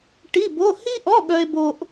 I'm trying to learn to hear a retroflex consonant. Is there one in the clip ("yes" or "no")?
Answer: yes